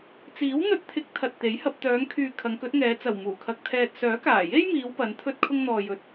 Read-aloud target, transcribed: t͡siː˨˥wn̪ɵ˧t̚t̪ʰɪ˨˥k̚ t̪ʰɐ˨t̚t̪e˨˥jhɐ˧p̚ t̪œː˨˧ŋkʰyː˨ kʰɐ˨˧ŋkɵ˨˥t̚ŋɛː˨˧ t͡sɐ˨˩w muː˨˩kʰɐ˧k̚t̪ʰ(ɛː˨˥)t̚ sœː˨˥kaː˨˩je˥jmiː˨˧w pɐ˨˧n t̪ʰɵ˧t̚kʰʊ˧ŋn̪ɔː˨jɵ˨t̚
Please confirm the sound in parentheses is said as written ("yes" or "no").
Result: no